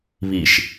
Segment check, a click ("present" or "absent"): absent